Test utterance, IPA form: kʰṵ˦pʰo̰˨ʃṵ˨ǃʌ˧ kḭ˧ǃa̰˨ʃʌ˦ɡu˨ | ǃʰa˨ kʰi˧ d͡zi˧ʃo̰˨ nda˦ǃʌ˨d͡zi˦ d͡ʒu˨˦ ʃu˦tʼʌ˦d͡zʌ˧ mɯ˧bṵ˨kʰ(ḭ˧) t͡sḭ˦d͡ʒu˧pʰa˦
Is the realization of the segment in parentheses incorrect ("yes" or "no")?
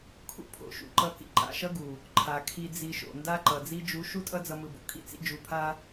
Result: yes